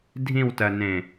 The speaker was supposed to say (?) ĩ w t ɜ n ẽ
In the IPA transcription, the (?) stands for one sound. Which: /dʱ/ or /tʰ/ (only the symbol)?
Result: dʱ